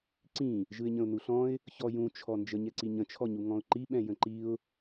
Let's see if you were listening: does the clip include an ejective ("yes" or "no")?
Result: no